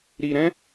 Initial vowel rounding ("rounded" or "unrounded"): unrounded